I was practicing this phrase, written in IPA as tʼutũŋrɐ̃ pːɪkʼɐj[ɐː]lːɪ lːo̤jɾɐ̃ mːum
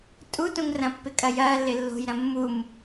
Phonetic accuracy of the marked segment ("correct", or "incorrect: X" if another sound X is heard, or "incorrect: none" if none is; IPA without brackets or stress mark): correct